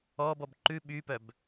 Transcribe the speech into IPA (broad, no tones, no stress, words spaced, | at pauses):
ɔːbɔb ǃʉ ɓypœb